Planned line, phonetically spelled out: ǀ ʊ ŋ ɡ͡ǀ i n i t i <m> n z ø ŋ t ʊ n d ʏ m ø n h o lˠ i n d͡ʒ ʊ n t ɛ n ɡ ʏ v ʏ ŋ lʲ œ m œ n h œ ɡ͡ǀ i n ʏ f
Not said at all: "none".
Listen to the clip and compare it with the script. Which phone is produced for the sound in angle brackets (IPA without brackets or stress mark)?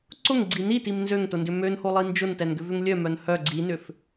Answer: m